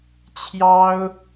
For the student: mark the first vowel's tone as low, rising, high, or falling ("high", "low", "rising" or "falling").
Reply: high